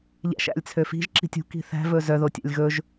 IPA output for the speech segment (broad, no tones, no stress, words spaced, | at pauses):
ʎæ̰ʃ æ̰lʲt͡sʰøfi̤ʒ ǁi̤tʲṳ ki̤θæ̤ vɵzœ ðotʲæ̰lʲɣɵʒ